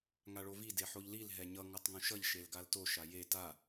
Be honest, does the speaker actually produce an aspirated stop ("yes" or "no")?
no